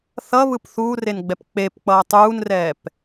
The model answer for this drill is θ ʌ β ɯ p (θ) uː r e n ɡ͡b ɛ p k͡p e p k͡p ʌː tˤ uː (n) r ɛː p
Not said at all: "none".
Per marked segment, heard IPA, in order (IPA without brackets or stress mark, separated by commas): θ, n